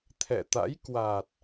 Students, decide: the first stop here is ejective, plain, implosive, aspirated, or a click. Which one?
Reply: aspirated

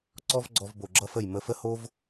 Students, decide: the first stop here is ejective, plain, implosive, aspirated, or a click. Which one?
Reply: click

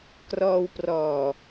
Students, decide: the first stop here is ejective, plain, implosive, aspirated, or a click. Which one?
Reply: plain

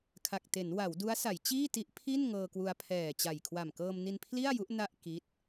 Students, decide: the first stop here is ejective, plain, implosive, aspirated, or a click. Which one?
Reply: aspirated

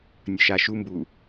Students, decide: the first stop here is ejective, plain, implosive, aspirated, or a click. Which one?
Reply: plain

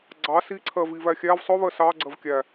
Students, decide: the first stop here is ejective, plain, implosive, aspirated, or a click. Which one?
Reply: click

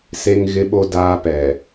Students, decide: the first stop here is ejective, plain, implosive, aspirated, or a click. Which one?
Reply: implosive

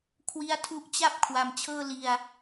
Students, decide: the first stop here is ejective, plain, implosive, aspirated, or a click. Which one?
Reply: aspirated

